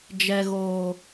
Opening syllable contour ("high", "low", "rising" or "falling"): low